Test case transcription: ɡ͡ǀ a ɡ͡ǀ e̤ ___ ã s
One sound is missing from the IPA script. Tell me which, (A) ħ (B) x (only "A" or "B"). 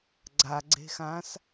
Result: B